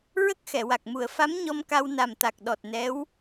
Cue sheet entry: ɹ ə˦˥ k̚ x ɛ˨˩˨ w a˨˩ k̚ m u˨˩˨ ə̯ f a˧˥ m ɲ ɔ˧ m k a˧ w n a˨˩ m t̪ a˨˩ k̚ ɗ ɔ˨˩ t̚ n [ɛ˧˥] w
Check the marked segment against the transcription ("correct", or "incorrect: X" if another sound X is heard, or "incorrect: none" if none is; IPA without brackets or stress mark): correct